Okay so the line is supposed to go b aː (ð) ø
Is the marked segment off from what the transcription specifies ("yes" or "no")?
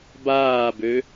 yes